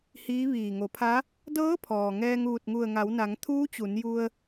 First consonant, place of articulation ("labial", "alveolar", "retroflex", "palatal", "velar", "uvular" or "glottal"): glottal